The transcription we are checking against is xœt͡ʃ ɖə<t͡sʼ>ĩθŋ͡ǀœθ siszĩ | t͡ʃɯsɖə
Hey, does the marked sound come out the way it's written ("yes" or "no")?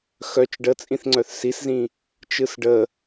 yes